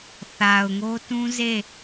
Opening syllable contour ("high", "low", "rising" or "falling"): low